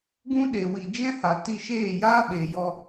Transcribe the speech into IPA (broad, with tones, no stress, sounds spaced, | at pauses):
ɡ ũ˦ ɗ eː˨ w i˨ d͡ʒ ɛ̃˦ h a˨ t i˧ ʃ eː˦˨ j aː˦ ɓ eː˨ j ɔ˧